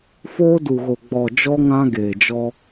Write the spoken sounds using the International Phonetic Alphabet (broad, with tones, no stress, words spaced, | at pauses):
foː˦du˨ɣo˨ ɡ͡bɔ˨ d͡ʒɔ˦ŋã˦ɡeː˨d͡ʒɔ˦